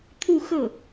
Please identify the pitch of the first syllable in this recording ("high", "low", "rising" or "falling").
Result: falling